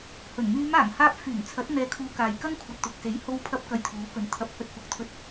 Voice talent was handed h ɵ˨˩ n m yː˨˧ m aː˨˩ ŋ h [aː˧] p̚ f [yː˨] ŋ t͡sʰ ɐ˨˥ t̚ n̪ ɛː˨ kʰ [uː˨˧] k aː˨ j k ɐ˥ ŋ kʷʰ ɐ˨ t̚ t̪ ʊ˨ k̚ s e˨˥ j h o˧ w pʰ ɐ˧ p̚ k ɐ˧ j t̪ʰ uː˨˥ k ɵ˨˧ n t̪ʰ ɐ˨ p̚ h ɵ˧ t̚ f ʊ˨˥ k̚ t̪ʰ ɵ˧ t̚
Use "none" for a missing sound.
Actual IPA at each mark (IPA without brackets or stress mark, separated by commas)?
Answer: aː˧, yː˨˩, uː˨˧